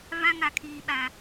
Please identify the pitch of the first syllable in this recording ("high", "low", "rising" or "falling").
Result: high